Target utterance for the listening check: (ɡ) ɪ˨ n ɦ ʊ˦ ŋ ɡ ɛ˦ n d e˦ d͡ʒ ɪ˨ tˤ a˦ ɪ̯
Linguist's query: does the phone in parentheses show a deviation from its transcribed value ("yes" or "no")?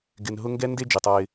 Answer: no